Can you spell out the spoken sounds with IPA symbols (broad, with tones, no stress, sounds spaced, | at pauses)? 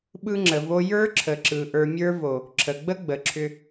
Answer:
ɓ ɯ˧ ŋ͡ǁ ə˨ v o˧ j ə˞˦ ǁʰ ə˨ ǁ ɯ˨ ʔ ə˞˨ mʲ ə˞˧ v o˨ | ǁʰ ə˨ ɡ͡b ə˦ ɡ͡b ə˨ ǁʰ ʏ˧